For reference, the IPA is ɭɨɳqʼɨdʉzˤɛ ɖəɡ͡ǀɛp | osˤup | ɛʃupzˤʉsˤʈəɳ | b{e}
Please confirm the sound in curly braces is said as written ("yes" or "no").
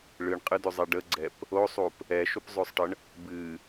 no